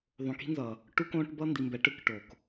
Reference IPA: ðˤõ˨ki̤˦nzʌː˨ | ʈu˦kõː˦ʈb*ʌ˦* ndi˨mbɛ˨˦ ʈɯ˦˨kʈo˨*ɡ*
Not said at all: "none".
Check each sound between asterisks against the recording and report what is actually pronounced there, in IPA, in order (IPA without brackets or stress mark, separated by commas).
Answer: ʌ˦, k